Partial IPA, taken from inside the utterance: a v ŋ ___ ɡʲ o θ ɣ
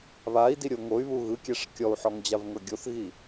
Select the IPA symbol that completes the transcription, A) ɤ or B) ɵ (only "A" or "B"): A